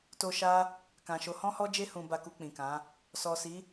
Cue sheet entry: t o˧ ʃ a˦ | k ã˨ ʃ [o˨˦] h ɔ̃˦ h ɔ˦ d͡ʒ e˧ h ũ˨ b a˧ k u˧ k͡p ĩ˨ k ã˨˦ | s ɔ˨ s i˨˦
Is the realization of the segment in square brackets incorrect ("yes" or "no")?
no